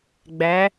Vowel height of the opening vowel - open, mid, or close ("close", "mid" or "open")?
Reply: open